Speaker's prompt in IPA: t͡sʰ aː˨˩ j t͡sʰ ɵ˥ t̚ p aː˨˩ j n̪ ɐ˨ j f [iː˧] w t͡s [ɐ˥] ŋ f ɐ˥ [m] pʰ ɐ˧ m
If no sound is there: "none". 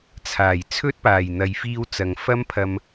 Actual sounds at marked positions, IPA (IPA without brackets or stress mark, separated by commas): iː˧, ɐ˨, m